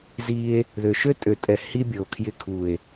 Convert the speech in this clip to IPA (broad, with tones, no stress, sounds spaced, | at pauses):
z i˧ e̯ | ð ø˨ ʃ ø˦ tʼ ø˨ tʼ ɛ˨ h i˦ bʲ ɤ˨ o̯ kʰ j ɪ˧ kʰ u˨ e̯